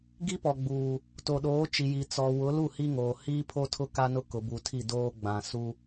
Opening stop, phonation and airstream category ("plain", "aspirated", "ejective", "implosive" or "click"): plain